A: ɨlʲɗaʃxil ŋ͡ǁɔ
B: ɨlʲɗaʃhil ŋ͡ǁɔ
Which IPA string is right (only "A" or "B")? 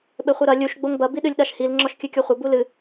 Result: B